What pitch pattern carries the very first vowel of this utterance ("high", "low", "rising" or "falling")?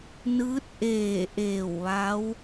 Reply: rising